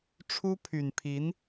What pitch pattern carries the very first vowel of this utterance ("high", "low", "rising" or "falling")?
high